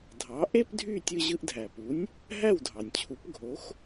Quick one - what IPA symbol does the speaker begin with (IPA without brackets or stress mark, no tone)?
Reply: dʱ